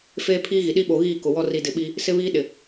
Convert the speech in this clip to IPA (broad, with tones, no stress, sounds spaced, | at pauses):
f eː˦ pʰ iː˦ ɣ i˨ ɗ i˦ ɓ o˨ ɣ iː˦˨ k ʊ˨ w ɔ˦ r i˨ d ɪ˨ ɓ i˦ | s ɪ˦ β iː˦ ɗ ɪ˨